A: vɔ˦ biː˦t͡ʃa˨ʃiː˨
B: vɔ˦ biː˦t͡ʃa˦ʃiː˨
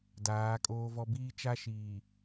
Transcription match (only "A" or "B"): B